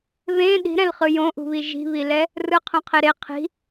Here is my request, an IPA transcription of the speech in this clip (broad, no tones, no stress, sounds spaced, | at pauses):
β ẽ ɗ i̤ ɾ ɛ̃ l χ ɯ j õ ʔ ṳ β i ʒ i̤ β i l ɛ | r ɯ qʰ õ qʰ e ɾ e qʰ i̤